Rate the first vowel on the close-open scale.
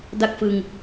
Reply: open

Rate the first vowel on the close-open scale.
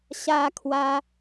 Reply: open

